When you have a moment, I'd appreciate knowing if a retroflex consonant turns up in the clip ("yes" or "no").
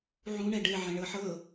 yes